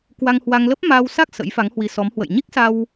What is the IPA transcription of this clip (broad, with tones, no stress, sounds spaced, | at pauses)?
k w a˧ ŋ h w a˧ ŋ l ə˦˥ p̚ m aː˧ w s a˦˥ k̚ s ə̰˧˥ j f a˨˦ ŋ h w i˧ s ɔ˨˦ m h w ə̰˧˨ j ɲ i˦˥ k̚ s a˧ w